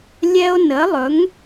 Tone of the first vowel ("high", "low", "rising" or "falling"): high